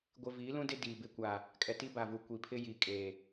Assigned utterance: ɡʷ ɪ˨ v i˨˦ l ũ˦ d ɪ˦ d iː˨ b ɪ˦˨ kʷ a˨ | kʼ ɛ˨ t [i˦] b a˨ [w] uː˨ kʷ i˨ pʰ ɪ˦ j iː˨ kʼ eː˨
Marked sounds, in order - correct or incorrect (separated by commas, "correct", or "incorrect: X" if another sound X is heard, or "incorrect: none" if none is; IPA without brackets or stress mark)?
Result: correct, incorrect: v